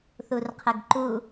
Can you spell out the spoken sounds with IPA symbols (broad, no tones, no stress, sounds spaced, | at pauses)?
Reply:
θ u r qʰ ə ɡ ǃ u